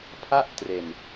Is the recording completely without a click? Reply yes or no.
yes